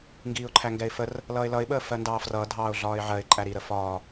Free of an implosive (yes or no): no